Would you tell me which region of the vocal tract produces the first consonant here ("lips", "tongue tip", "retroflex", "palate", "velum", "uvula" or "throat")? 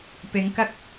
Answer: lips